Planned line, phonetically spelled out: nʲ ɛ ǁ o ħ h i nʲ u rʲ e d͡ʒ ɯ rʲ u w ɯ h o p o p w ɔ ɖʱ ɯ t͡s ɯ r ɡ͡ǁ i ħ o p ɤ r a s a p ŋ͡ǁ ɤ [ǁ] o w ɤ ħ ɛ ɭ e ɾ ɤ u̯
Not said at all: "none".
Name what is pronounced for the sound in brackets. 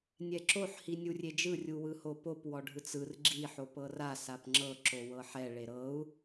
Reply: ǁ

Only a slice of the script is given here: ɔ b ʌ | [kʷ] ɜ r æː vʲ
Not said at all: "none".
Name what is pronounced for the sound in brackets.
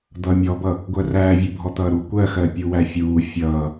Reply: ɡʷ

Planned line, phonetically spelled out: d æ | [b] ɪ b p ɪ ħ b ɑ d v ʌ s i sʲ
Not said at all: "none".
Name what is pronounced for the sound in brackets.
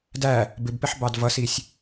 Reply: b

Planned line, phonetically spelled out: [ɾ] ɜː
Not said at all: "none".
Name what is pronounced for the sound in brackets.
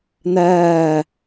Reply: n̪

